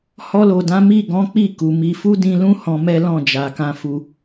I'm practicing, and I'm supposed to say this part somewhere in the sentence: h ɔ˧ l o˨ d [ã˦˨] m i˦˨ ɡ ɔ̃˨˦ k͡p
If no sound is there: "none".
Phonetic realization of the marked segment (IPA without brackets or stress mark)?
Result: ã˨˦